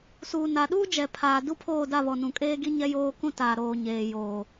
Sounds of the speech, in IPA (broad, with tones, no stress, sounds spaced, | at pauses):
s uː˨ n a˨ ɗ uː˦ d͡ʒ ɛ˨ pʰ aː˨ d u˦ pʰ oː˦˨ d a˦˨ β ɔ˨ n ũ˨ kʼ eː˦ ɡ i˦ ɲ ɛ˦ j oː˦ k ũ˦ t aː˨ ɾ oː˨ ɲ eː˨ j oː˨